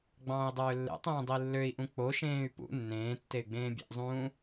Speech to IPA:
ɡ͡b ɑ̃ː i̯ dˤ øː lː ḛ tˤ ẽː dˤ i lː ø i̯ ʔ ũ k͡p o ʃ ẽː y̯ p ṵ nː ẽː tː e y̯ ɡ͡b ẽː bʲ ḛ ʔ zˤ ũː

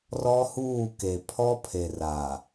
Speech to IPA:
r ɔ˦ h uː˦˨ k e˨ pʰ ɔ˦ pʰ e˨ r aː˨

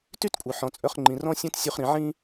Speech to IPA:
t y˥ t kʷʼ œ˩ ħ ɔ̃˩ t͡sʼ œ˧ χ ŋ͡ǃ ĩ˩ r ɔ̃˥ sʲ œ̃˥ t sʲ u˧ χ ɾ ĩ˩ ʕ ĩ˥

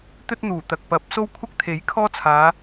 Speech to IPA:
t̪ ɵ˥ t̚ n̪ uː˨˩ t̪ ɐ˨ k̚ p ɐ˨˥ p̚ s o˥ w kʷʰ ɐ˥ k̚ t̪ʰ e˨˥ j kʰ ɔː˥ t͡sʰ aː˨˧

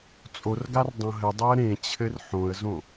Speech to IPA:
t͡sʼ o r ɡ a r dˤ õ ɦ ɘ dˤ o ə̯ ɾ ẽ t͡ɕʰ ɘ r ħ õ ə̯ z õ

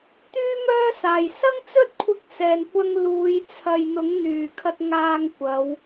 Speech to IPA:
t̪ yː˥ m œː˥ s aː˨˩ j s ɐ˥ ŋ t͡s ɵ˥ t̚ kʷʰ ɪ˧ k̚ s ɛː˨˩ n kʷ ɐ˧ ŋ l uː˨˧ j t͡sʰ ɐ˨ j n̪ ʊ˨˥ ŋ n̪ yː˨˩ kʰ ɐ˧ t̚ ŋ aː˧ ŋ kʷ ɐ˨˧ w

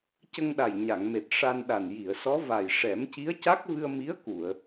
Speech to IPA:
c ə˧ ŋ ɗ a˨˩ j ɲ a˨˩˨ ŋ m e˨˩ t̚ ʂ a˧ n ɗ a˨˩ n j i˨˩˨ ə̯ s ɔ˧˥ v a˨˩ j ʂ ɛ˨˩˦ m c i˧˥ ə̯ c a˦˥ k̚ v ɨ˧ ə̯ m i˧˥ ə̯ k u˨˩˨ ə̯

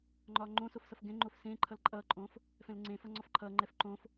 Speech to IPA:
ŋ͡ǃ ɒː ŋ͡ǃ õ s o f s ʌ f ɡ ɛ̃ ŋ͡ǃ o f s ẽː ǃʰ ʌ l ǃʼ ʌː ǃʼ õː f | f ɛ̃ l ŋ͡ǀ ẽ f ʌ ŋ͡ǀ ɒ f ǃʰ ʌː ŋ͡ǃ ɛ f ǃ õ f

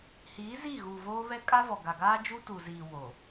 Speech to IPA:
h iː˨˦ z i˦˨ ɣ u˨ v oː˦ β ɛ˦ kʼ a˦ v ɔ˨ ɡ a˨ ɡ aː˦ d͡ʒ u˦ t u˨ z iː˨ w oː˨

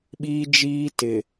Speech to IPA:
ɓ iː˦ d͡ʒ iː˦ t ɪ˨

